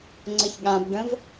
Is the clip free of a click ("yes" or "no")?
no